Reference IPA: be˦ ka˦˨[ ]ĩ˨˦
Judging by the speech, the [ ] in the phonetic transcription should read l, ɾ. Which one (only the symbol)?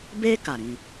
ɾ